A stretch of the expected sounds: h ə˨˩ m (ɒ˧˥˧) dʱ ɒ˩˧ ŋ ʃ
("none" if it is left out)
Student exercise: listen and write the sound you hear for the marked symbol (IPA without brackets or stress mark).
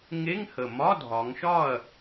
ɒ˧˥˧